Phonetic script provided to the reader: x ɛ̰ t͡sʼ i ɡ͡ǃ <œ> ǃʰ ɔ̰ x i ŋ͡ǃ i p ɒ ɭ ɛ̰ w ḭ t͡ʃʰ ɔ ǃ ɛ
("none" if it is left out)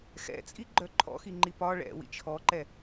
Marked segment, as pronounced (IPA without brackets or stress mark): œ